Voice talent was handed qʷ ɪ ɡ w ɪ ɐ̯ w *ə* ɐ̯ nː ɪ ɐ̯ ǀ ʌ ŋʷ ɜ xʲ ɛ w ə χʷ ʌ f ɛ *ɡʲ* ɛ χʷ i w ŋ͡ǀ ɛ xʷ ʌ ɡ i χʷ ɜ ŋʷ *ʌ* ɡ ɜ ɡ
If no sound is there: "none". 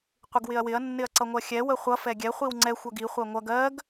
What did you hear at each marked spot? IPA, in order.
ɪ, ɡʲ, ʌ

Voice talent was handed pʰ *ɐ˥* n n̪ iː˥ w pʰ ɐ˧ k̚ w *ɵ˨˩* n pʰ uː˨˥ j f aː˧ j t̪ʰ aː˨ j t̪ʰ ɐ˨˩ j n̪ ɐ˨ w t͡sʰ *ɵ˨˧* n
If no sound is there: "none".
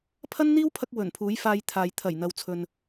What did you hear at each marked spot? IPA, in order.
ɐ˥, ɵ˨˩, ɵ˨

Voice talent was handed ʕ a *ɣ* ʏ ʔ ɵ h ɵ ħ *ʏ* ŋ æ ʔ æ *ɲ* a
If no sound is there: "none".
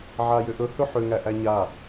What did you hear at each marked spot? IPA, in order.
j, ʏ, ɲ

